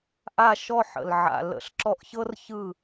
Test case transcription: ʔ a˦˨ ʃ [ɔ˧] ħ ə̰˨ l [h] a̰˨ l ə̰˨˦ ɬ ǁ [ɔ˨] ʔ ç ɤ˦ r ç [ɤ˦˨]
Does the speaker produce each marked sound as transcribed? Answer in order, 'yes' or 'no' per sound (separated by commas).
no, no, no, no